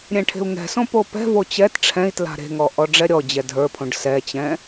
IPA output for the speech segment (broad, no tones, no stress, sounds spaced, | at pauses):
ɾʲ ɛ̃ ʈʰ e̤ u̯ ŋ ɛ̤ s õ p o p ɛ̤ v o t͡ɕ ɛ t ʈ͡ʂʰ ɛ̃ i̯ t l a̤ ɾ e̤ ŋ ɔ ʔ ɔ ɖ͡ʐ ɛ ɾʲ ɔ d͡ʑ ɛ dʱ ə˞ pʰ õ ɖ s ɛ t͡ɕ ɛ̃